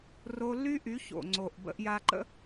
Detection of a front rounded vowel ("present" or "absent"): present